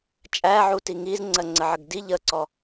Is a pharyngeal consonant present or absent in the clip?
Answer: present